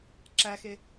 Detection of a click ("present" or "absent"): present